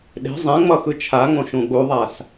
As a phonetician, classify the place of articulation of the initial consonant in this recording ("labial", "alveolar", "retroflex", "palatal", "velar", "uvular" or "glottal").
alveolar